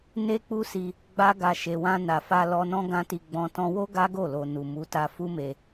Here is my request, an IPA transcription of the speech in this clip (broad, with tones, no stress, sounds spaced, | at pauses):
n e˦ k͡p u˦ s i˧ | ɡ͡b a˦ ɡ a˧ ʃ e˨ w ã˧ n a˨ f a˧ l ɔ˧ n ɔ̃˦ ɡ ã˦ t i˧ ɡ͡b ɔ̃˦ t ɔ̃˧ w o˦ ɡ a˦ ɡ o˦˨ l o˨ n u˨ m u˨˦ t a˧ f u˦ m e˧